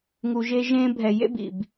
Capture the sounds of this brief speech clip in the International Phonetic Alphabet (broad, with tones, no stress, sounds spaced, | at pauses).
ŋ u˨ ʒ e˧ ʒ ẽː˧ bʱ ɛ˨ j ḛ˦ b ḭ˨ b